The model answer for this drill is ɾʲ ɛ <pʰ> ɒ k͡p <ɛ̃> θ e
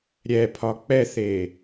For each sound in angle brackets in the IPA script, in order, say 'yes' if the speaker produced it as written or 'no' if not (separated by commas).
yes, no